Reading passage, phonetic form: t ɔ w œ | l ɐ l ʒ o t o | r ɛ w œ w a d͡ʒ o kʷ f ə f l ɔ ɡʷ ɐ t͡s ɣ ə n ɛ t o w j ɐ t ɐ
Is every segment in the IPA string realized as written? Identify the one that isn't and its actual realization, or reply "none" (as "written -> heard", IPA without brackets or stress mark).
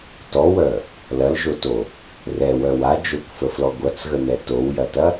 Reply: none